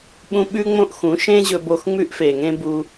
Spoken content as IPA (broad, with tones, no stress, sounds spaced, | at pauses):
ɓ ũ˦ ɓ ʉ˦ ŋ͡m õ˧ ʔ x ũ˨˦ ʃ ẽ˦ ʑ ɵ˧ b o˧ x ŋ͡m ʉ˦ ʔ f e˨ ŋ ẽ˦ b u˧